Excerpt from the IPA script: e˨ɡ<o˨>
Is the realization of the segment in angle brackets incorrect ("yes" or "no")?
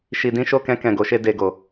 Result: no